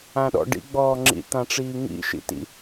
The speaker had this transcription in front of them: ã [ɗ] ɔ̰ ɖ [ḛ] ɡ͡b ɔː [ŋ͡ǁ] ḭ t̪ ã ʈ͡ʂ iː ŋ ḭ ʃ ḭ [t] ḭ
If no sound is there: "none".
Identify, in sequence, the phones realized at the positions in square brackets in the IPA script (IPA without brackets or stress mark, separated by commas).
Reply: ɗ, ḭ, ŋ͡ǁ, t